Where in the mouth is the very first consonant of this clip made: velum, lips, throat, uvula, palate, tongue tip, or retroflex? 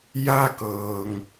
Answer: palate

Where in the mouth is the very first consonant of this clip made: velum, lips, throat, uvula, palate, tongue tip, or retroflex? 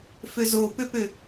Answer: lips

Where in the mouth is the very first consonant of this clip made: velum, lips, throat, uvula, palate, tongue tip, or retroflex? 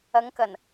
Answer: velum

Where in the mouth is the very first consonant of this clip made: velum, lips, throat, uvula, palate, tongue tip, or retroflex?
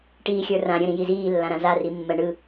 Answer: retroflex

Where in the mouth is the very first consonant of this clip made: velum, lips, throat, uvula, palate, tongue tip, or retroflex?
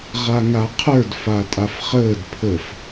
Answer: uvula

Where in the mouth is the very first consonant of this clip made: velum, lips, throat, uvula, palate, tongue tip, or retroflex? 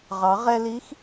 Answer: uvula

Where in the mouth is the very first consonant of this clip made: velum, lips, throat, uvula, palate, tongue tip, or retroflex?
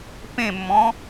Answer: lips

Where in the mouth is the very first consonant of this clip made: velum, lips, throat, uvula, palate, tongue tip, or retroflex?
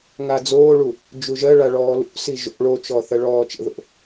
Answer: velum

